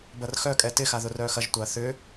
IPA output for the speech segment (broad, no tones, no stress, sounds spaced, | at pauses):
b ɐ r x œ kʼ ɛ t ɪ x a ð ʊ r œː x ɐ ʒ tʷ ɐː θ ʏ